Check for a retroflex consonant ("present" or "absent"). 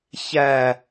absent